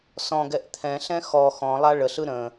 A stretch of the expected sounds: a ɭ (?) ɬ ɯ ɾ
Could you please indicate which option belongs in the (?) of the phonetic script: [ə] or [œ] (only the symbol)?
ə